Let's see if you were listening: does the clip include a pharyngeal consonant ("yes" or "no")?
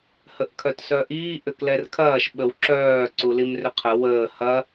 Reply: no